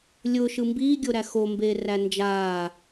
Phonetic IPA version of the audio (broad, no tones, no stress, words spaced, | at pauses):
lʲʊːʃɯ mbiːɡʲoɾæ xombeːræ nd͡ʒaː